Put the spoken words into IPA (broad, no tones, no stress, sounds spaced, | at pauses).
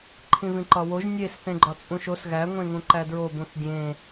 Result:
ǃʰ ĩ v ĩ ǃ ɒ w o ʒ nʲ e s θ ẽ ɡ͡ǃ ɒ t͡sʼ ũ ʃ o s ɣ æ ŋʷ ẽ ŋ ũ ǃ æ d ɹ o b ũ θ dʲ ẽ